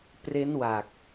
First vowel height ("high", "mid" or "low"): mid